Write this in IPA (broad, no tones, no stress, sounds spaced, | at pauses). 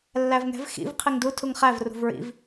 lː æ v ŋ ɛ̤ v x ḭ v qʰ i ŋ d u tʰ u ŋ χ æ v r ṳ v ɹ ḭ v